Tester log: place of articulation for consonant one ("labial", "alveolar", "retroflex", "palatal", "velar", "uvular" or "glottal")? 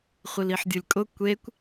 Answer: uvular